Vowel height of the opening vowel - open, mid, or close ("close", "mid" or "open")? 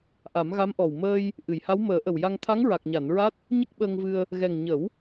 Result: open